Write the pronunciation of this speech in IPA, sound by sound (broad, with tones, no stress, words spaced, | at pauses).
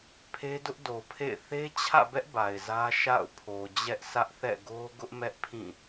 pʰe˦dʊ˦ʔdo˨pʰḛ˦˨ɪ̯ θe˦t͡ɕʰä̰˦˨bɛ˦ʔ ba˨ɪ̯zä˦ʃa̰˦˨ʊ̯ pʰo˨d͡ʑɛ˦ʔ sʰä˦ʔθɛ̰˦˨ ɡo˦ ɡʊ˦ʔmɛ˦ʔpʰĩ˦˨